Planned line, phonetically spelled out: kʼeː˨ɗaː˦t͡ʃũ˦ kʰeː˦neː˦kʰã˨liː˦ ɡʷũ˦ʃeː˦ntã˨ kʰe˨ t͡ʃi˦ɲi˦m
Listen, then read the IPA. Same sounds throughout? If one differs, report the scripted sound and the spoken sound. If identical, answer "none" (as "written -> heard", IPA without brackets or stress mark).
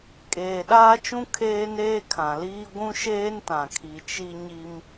e˨ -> i˨